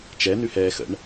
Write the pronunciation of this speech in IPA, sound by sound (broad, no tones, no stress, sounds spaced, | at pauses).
t͡ʃ ɛ n ʉ h ɛː x ə̰ ɳ